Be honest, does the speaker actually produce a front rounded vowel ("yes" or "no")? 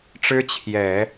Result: no